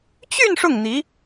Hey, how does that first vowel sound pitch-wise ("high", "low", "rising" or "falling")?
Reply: falling